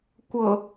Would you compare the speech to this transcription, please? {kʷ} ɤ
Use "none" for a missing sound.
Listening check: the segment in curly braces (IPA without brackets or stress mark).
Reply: kʷ